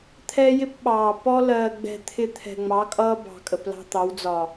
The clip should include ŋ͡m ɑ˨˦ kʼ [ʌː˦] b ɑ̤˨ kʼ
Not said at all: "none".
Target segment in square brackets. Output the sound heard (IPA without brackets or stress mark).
ʌː˦